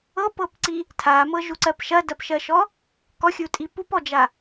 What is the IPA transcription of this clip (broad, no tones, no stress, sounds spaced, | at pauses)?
ɤ p ɤ p ǀ i | tʰ a m ɤ ʒ u ǀ ɜ p ʃ ɐ d ɐ p ʃ ɜ ʃ ɔ | k ɔ xʲ u tʼ i p u p ɔ d͡ʒ a